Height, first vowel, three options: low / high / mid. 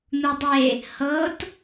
high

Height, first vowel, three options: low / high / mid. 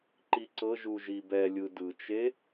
high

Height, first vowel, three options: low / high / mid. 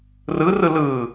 high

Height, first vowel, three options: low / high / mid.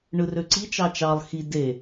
high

